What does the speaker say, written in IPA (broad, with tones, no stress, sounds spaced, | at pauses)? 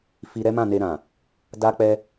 f i˧ ɾ ɛ˦ m ã˦˨ n e˧ ɾ ã˨ | d a˦ k͡p ɛ˦